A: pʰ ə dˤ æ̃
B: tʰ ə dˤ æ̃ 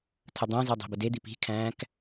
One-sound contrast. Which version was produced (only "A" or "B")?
B